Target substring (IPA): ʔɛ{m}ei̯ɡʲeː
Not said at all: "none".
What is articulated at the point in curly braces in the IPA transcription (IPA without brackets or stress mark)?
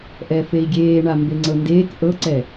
f